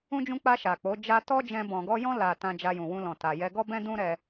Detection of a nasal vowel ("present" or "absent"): present